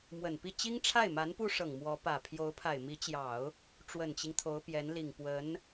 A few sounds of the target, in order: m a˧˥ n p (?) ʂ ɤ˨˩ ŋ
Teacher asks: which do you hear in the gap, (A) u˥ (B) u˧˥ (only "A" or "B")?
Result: A